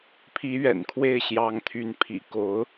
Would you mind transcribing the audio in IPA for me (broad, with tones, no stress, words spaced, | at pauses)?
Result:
pʰi˧˥ɥɛ̰˨˩nkʰwe˥˩ɪ̯ ɕjɑ˧˥ŋt̪ʰy˧˥n pʰḭ˨˩ko˧˥ʊ̯